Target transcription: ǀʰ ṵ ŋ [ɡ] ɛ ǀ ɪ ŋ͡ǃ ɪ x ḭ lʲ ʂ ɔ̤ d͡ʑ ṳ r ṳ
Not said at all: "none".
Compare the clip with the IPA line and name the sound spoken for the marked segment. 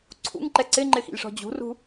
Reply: ǃ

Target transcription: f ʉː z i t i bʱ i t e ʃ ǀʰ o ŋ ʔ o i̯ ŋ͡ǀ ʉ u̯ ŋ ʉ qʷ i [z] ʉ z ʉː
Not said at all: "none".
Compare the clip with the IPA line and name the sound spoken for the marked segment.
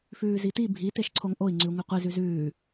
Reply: z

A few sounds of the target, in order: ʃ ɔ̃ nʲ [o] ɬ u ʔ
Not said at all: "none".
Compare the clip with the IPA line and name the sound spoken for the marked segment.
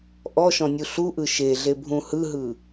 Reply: u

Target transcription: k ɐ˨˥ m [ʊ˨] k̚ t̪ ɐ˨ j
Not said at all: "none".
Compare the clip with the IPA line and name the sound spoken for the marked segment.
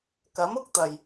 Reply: ʊ˥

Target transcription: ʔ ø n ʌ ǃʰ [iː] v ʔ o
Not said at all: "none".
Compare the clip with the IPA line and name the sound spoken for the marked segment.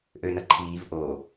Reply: iː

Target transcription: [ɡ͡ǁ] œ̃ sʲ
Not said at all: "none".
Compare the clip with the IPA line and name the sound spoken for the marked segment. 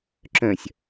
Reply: ǁ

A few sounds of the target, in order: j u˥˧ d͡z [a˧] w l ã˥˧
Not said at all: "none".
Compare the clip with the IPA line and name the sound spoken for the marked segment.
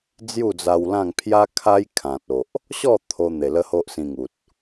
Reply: a˧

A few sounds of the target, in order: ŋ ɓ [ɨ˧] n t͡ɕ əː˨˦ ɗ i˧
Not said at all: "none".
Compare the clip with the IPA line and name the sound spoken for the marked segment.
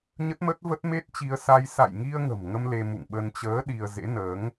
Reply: ə˧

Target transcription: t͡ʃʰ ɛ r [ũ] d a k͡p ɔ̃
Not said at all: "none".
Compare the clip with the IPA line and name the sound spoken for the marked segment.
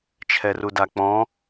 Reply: u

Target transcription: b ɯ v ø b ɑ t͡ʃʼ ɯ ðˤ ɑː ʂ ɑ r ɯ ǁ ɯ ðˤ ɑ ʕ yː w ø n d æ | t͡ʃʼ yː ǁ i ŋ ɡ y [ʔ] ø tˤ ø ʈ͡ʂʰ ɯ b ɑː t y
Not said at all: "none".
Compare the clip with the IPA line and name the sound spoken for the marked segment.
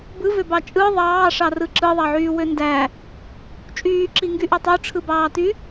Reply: ʔ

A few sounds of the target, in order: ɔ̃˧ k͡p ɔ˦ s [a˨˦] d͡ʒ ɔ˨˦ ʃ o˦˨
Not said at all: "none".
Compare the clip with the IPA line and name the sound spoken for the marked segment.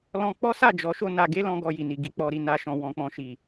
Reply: a˦˨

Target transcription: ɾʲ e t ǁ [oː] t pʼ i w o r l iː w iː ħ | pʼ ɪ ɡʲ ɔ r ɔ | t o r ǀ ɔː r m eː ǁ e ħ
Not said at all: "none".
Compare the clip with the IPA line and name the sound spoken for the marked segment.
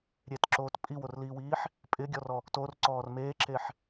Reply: oː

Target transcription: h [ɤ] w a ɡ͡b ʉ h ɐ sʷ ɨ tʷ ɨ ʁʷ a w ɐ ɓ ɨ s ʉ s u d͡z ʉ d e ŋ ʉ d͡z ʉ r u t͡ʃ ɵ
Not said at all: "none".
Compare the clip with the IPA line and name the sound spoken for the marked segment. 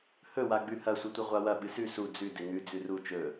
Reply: ɵ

